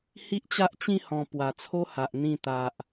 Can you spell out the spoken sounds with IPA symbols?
h i˦ ʔ t͡ɕ a˦ ʔ t͡ɕ ĩ˥˧ h ɔ̃˨˩ p w a˨˩ t͡sʰ o˦ h a˨ ʔ n̪ ĩ˧ t̪ a˨ ʔ

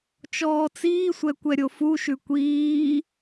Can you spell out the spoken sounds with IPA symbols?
t͡ʃ ɔː t͡s iː sʷ ɛ kʷ ɛ ɾʲ o f u ʃ ʉ kʷ iː

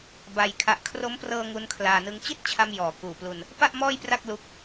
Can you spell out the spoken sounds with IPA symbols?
b a˧ j kʰ a˨˩ ʔ kʰ r o˦˥ m p r ɤː˧ ŋ u˦˥ n kʰ l aː˧ n ɯ˦˥ ŋ t͡ɕ i˥˩ t̚ t͡ɕʰ a˧ m j ɔː˨˩ k uː˨˩ p l u˧ n | p a˥˩ ʔ m ɔː˥˩ j p r a˥˩ k̚ l u˦˥ k̚

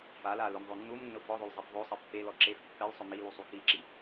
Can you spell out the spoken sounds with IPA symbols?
f a l a l ʊ m ðˤ o nː u m nː ʊ f ɔ ðˤ o l zˤ i f ðˤ o sˤ ɪ pː e l ɔ ǁ e f pː ɛ l sˤ ʊ m i l u sˤ u k i ǁ i

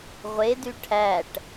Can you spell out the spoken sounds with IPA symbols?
ʁʷ e d y ʈʰ æ ʈ

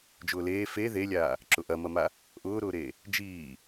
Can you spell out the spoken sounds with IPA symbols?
d͡ʒ ʊː l eː f e ð e lʲ aː | ǁ ʊ ʔ ɐ m ɐ m a | ʔ ʊː ɾ ʊː ɾ eː | d͡ʒ iː

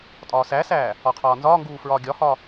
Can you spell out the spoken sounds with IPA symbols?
tʼ ɒː s æ s æː | ɒ qʰ ɒː n z ɒː ŋ ɡ uː f ɹ ɒː ɡʲ ɒ h ɒ

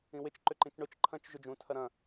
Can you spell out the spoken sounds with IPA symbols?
ĩ w ɪ t͡ʃ ǃ ʏ ǃ ĩ t͡ʃ ɳ ʊ t͡ʃ ǃʰ ɐ̃ t͡ʃ ʒ ʏ d͡ʒ ũ tʰ ɐ ɾ ɐ̃

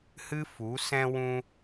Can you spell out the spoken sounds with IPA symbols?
h ɨ˦ f u˨˦ s ɛ̃˧ w ũ˧

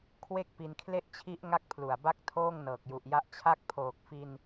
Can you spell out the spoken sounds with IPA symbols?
kʰ w e˥˩ k̚ p i˧ n kʰ l e˥˩ ʔ t͡ɕʰ i˦˥ ʔ ŋ a˥˩ k̚ pʰ l u˨˩ a̯ b a˥˩ k̚ tʰ oː˥˩ ŋ n ɤː˨˩ k̚ j u˨˩ ʔ j a˦˥ ʔ t͡ɕʰ a˦˥ k̚ pʰ oː˨˩ k̚ f i˧ n

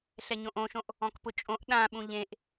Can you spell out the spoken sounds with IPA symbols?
ɬ ɛ ɲ õ ʔ õ ʃ õ ʔ | ɔ̃ k p ʊ t͡ʃʼ õ ʔ ɗ ã ɓ ũ ʎ ẽ ʔ

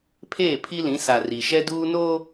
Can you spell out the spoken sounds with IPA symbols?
pʰ eː˦˨ pʰ i˦ l ĩ˨˦ s a˨ r i˨ ʃ ɛ˦ d uː˦ n oː˦

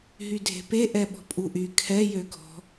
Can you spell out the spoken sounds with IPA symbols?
ɦ y dʱ e̤ p e ʔ ɛ ɓ ɔ̤ pʼ u ʔ y kʰ ɛ j ø ɡʱ ɔ̤

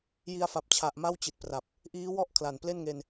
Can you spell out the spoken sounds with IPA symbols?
j i˧ a̯ f a˨˩ p̚ t͡ɕʰ a˨˩ ʔ m a˥˩ w t͡ɕ i˨˩ t̚ p r a˨˩ p̚ | ʔ iː˦˥ w ɔ˥˩ ʔ kʰ l a˨˩ n p l e˥˩ n ŋ e˧ n

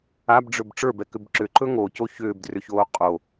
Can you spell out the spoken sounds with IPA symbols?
a b ɖ͡ʐ ɵ b ʈ͡ʂ ə˞ b ɛ k ʏ b ǁ ʏ ǃ ɵ ŋ o c o ç ʏː b d r ʏ ç oː qʼ o

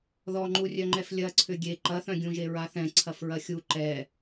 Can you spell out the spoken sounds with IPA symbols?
ð ɔ ŋ͡ǃ u rʲ œ ŋ͡ǃ ɛ f lʲ ɐ ǀʰ ʏ ɡʲ e ǃ ɐ θ œ̃ ɡʲ ũ ʒ e ɹ a θ ɛ̃ ǀʰ ɐ f ɹ ɐ xʲ u ǃ ɛ

